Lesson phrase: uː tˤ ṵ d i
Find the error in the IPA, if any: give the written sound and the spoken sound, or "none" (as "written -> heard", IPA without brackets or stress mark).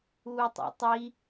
d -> tˤ